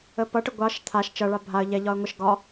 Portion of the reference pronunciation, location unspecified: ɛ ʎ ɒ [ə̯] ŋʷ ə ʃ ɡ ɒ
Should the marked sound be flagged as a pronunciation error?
no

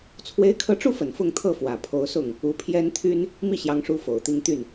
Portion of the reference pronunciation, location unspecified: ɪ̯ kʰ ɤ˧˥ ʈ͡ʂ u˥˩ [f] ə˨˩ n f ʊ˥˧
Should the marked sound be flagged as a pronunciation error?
no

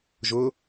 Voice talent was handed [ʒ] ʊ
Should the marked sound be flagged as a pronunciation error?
no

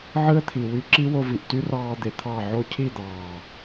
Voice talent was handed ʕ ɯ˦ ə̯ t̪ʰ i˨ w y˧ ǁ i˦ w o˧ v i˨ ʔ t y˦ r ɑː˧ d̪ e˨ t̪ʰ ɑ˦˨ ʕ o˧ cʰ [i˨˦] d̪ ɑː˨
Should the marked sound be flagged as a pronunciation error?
yes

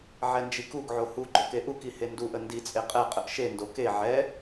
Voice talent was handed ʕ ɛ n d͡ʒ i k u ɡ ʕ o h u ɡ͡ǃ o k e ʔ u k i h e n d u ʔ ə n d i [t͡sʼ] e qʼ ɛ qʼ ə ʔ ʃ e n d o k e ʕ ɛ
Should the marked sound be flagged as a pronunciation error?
no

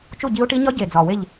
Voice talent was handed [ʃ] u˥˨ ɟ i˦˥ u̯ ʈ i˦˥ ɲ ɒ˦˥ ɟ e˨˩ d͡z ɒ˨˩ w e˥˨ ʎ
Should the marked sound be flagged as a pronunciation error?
yes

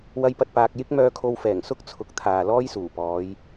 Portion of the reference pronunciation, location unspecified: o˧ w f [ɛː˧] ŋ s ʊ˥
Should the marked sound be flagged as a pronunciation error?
yes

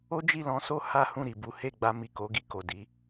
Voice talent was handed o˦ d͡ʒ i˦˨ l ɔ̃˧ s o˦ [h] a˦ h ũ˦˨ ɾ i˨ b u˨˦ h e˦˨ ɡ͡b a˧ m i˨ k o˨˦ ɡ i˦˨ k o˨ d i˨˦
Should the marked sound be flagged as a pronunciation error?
no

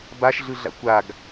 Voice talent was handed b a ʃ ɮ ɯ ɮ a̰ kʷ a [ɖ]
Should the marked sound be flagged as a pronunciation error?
yes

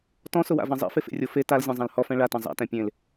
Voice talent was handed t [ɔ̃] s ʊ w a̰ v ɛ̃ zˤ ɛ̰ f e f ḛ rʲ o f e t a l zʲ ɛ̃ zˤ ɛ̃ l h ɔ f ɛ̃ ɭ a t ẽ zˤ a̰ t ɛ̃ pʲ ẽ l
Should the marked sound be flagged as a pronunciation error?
no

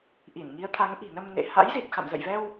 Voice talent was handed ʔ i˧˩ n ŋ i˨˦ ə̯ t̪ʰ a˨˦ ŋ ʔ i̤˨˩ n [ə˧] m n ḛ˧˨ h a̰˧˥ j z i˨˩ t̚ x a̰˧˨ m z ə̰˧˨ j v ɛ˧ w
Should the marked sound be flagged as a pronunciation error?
no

